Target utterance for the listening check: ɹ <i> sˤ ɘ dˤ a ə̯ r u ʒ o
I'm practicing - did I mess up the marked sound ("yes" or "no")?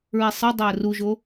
no